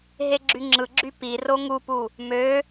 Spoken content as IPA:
ɦ e ɡ͡ǁ y ŋ͡ǁ ɯ ɡ͡ǁ y p i r o ŋ u p u | m ø

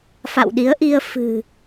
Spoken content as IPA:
f a̰˧˨ w ɗ i˨˦ ə̯ ʔ i˧ ə̯ f ɨ̤˨˩

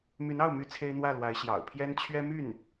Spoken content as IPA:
m y˧˥ n ɑ˥˩ ʊ̯ m y˥ t͡sʰ e˥ ɪ̯ n̪ w ä˥˩ l w a˧˥ ɪ̯ ɕ j ɑ̰˨˩ ʊ̯ pʰ j ɛ˥ n t͡ɕʰ ɥ ɛ˥ m y˥˩ n

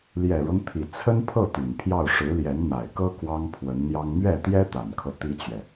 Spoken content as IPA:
l j ɛ˨˩ ɻ ɤ˦ ŋ t̪ʰ i˨˩ t͡sʰ ə˥ n pʰ ɤ˥˩ t̪ y˨˩ n pʰ j ɑ˥˩ ʊ̯ ʂ ɻ̩˧˥ l j ɛ˧˥ n n̪ a˨˩ ɪ̯ k ɤ˥ k w ɑ˥ ŋ pʰ w ə˧˥ n n̪ j ɑ˥ ŋ m ɥ ɛ˥˩ t̪ j ɛ˥ t̪ a˨˩ n kʰ ɤ˦ t̪ i˥ t͡ɕ ɥ ɛ˨

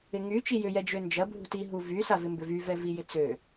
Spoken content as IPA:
ɪ ŋ y t͡ʃ i j ʏ j ɛ d͡ʒ ø n d͡ʒ ɐ bʱ ṳ t i ɦ u v y s a v ɪ m b ʏ v y v ɛ v i j ɪ t͡s ø

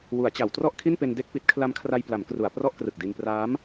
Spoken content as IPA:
w u˩˦ a̯ t͡ɕ a˩˦ w t r ɔ˥˩ ʔ kʰ i˥˩ n p e˧ n d e˥˩ k̚ p i˦˥ t̚ kʰ l a˦˥ m kʰ r a˧ j p l a˩˦ m k r u˩˦ a̯ p r ɔ˥˩ ʔ k r ɯ˨˩ k̚ d i˧ n p r aː˦˥ m

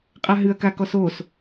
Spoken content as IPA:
qʼ a ɦ ɨ ɐ̯ k a k ɔ s o s

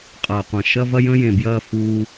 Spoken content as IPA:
qʼ ɐː˨ qʷ ɐ̃˨ ʃ ɐ˦ v ɐ˦ j ə̃˦ j ẽ˨ b j ɐː˦˨ f uː˦

